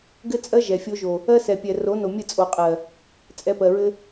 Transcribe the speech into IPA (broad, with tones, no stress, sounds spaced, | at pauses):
ɡ ɘ˦ t͡sʼ ɜ˦ ʒ ɛ˨ fʲ o˦ ʒ o˨ | ɜ˦ s ɛ˨ pʲ ɛ˨ r o˨˦ n o˨ mʲ ɘ˦˨ t͡sʼ o˨ qʼ ɜ˨ | t͡sʼ ɛ˧ p ɜ˨ ɹ ɘ˦